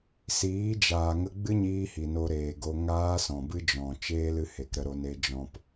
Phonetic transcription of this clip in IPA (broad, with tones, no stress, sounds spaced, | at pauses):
s iː˨˦ d͡ʒ aː˨ ŋ ə˧ ɡ͡b ɨ˦ ɲ iː˧ h i˨ n o˧ ɾ eː˨ ɡ o˧ ŋ aː˦ s ɔ̃˨ b ɨ˦ d͡ʒ ɔ̃˨ t͡ʃ eː˦ l ɨ˧ h e˨ k ɾ ə˧ ɾ o˧ n e˦ d͡ʒ ɔ̃˦ p